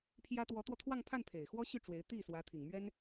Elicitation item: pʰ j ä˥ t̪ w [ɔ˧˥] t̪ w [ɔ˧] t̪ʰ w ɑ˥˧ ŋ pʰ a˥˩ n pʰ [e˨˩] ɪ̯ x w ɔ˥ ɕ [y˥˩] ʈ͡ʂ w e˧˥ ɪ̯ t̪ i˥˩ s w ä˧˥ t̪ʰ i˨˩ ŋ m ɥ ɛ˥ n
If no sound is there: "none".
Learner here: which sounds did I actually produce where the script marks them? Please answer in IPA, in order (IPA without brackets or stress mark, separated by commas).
ɔ˧˥, ɔ˧, e˨˩, y˥˩